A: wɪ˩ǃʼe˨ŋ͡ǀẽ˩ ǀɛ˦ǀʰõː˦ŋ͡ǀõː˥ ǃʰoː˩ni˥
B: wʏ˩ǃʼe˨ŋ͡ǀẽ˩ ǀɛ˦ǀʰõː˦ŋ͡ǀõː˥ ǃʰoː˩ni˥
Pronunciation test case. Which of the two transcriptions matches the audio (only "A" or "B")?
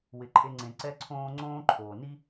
A